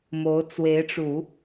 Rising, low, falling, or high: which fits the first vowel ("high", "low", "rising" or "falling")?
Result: rising